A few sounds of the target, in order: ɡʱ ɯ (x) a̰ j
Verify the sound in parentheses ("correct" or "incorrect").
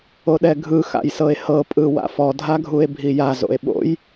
correct